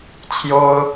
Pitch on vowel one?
high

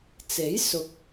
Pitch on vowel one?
rising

